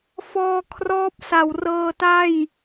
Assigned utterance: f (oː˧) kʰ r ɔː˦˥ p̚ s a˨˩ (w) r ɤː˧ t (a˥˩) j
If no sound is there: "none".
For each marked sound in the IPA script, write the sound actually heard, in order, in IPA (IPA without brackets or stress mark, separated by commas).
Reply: ɔː˧, w, a˥˩